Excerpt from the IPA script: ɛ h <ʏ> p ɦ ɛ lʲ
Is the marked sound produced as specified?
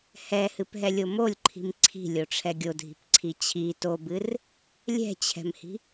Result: no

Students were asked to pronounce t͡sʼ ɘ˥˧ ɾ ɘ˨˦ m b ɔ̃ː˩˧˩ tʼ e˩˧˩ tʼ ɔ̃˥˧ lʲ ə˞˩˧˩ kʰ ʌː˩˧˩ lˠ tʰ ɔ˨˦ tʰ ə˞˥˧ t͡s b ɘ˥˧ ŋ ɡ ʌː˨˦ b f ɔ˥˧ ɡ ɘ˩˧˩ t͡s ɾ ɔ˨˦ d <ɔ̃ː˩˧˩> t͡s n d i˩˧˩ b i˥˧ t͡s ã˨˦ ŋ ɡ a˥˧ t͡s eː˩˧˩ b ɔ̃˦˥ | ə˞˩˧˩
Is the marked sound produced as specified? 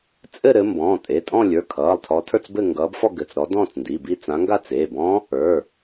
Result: no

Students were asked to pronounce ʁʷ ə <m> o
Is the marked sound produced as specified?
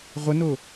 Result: no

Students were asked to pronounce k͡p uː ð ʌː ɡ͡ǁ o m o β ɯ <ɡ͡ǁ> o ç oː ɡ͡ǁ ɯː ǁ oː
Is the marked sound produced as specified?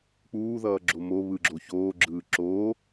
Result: yes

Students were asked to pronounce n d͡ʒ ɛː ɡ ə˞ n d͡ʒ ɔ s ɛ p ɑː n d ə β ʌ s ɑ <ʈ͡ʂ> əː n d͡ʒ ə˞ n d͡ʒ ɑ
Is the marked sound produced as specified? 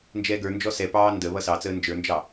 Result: no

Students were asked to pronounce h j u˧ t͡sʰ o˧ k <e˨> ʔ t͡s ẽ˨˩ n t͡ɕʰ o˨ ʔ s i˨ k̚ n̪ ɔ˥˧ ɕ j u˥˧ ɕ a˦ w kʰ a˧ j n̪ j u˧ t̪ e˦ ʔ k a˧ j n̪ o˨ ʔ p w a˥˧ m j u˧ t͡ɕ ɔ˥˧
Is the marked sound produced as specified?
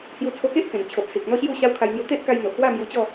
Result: no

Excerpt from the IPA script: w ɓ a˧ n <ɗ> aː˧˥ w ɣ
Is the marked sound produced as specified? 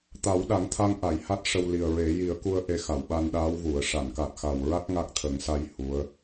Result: yes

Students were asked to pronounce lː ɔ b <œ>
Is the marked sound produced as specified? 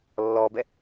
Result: no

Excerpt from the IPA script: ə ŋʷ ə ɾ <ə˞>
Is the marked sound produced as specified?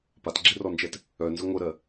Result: no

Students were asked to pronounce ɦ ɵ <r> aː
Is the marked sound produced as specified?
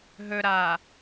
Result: no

